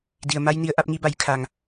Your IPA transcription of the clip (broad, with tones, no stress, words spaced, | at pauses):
di˩ə̯ ma˧jni˩˧ə̯ ʔa˧p̚ŋi˧ba˩˧jkʰa˩ŋ